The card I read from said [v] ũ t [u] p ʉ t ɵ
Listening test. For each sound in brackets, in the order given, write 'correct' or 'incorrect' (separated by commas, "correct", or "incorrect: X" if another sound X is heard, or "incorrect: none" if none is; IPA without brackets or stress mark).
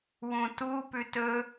incorrect: w, correct